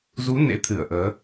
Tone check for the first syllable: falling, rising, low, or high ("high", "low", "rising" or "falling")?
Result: rising